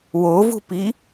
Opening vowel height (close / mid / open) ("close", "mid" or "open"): mid